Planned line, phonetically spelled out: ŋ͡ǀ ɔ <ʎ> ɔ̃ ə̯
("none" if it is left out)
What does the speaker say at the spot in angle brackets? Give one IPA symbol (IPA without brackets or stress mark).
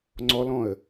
l